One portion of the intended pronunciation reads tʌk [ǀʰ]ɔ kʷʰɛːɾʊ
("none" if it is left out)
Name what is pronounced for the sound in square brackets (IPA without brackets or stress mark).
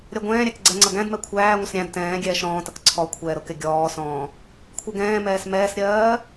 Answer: ǀʰ